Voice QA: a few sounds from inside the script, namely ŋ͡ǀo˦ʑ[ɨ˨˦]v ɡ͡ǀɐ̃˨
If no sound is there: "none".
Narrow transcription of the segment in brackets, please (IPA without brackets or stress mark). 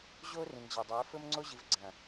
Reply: ɨ˨˦